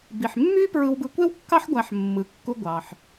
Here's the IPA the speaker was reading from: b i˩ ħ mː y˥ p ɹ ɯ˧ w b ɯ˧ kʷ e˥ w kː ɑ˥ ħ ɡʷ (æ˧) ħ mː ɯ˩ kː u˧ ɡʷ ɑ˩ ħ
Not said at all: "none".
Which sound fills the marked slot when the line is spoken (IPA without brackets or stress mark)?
æ˧